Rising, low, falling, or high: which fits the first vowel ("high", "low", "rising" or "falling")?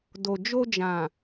low